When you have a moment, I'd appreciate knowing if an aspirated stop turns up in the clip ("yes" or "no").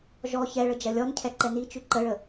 yes